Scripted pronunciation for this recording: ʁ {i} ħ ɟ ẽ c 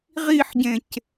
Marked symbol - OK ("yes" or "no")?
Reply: yes